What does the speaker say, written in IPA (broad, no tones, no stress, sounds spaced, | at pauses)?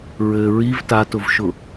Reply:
ɹ ɘ ɹ i v t a t ʊ v ʃ ʊ